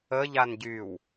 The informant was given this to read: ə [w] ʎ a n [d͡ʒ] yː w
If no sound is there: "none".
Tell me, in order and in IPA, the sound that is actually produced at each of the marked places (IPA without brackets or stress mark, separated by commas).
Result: none, ɟ